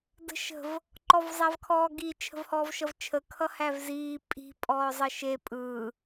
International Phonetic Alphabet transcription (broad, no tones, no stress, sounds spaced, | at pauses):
d ə̤ ʃ ə̤ v | ǃ ɔ v zˤ æ v kʰ ɔː ɡ i t͡ʃʰ ə̤ v h ɔː v ʃ ʌ v t͡ʃʰ ə kʰ ʌ h æ v z iː pʼ i̤ pʼ ɔː zˤ ʌ ʃ e pʼ ɯː